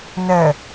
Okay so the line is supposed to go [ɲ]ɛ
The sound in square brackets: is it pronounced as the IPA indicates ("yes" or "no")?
no